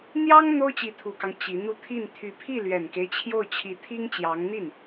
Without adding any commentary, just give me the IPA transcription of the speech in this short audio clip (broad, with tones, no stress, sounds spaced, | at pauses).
n̪ j ɑ˥ ŋ n̪ o˥ ʊ̯ t͡ɕ i˧˥ t̪ʰ u˨˩ k ɑ˦ ŋ t͡ɕ i˧˥ n̪ u˥˧ t̪ʰ i˥˩ n t̪ʰ y˧˥ pʰ i˥˩ l ɥ ɛ˨˩ n k e˦ ɪ̯ t͡ɕʰ j o˥˩ ʊ̯ t͡ɕʰ i˧˥ t̪ʰ i˥ ŋ t͡ɕ j ɑ˧˥ ŋ n̪ i˥˩ n